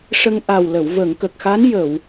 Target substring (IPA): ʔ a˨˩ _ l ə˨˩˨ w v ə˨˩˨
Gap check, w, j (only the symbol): w